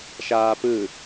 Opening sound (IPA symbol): ʃ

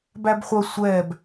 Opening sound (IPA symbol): b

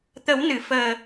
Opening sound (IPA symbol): t̪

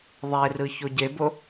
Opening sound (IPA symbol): ðˤ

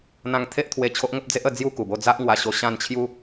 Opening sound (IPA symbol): n̪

